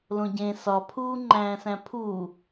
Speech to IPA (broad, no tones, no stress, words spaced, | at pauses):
lõɟẽ sɒpʰuː ŋ͡ǃæ̃ːsæ̃pʰuː